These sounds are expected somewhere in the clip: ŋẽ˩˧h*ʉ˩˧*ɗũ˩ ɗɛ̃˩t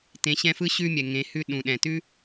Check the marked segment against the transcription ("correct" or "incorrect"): incorrect